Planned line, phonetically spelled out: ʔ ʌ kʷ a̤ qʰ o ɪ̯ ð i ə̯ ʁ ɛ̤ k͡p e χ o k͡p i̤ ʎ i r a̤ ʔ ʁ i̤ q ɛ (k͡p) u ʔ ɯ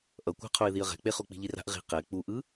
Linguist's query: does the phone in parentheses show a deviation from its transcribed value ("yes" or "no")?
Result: no